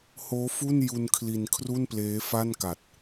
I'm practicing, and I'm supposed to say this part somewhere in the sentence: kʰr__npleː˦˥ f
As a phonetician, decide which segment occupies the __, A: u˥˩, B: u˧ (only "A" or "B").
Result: A